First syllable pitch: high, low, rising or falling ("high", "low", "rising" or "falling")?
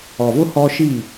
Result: low